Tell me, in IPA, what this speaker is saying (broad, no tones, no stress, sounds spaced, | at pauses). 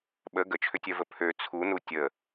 ɓ ə ɡ ə t͡ʃʰ ʏ tʲ œ v ə pʰ ø t͡sʰ u n u tʲ ə